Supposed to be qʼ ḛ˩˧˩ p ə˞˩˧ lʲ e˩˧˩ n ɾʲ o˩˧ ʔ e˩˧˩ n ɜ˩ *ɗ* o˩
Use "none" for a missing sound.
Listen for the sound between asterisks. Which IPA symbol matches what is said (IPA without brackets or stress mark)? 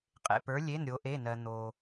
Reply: n̪